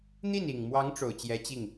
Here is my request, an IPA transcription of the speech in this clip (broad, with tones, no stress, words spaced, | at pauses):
n̪i˥˩ni˨˩ŋmwɑ˧˥ŋ ʈ͡ʂo˨˩ʊ̯t͡ɕjɛ˧˥t͡ɕi˥˩ŋ